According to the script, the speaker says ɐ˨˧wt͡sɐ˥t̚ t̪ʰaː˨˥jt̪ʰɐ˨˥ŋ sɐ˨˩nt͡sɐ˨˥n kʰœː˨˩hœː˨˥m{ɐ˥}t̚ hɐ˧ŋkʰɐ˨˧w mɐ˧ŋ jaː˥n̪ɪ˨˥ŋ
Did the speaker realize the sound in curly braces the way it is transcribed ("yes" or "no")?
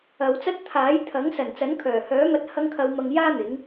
no